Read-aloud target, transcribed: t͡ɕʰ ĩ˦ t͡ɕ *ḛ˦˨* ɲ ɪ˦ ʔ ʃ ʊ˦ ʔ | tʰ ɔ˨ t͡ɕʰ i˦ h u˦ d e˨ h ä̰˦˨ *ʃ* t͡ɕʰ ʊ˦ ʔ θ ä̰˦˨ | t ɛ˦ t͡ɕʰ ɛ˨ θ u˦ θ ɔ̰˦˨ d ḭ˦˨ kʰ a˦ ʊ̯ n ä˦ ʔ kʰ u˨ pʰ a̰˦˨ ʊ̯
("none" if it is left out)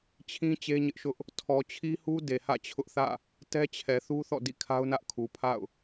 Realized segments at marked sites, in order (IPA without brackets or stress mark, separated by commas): e˦, none